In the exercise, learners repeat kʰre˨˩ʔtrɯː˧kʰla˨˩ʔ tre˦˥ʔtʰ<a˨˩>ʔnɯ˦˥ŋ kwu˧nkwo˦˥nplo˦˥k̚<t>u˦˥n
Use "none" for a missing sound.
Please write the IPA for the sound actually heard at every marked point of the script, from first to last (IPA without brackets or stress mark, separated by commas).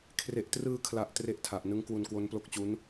a˨˩, t͡ɕ